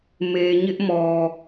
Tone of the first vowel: low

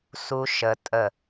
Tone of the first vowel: high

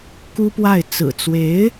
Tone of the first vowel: high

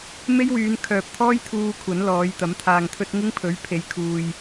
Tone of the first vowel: high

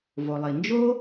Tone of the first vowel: low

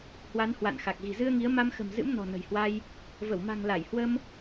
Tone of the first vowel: rising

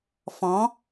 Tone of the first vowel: rising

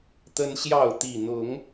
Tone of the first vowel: high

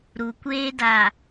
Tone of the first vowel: low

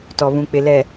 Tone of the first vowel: low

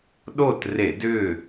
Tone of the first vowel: falling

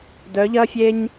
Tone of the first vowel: rising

